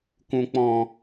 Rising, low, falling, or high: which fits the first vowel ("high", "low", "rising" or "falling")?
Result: low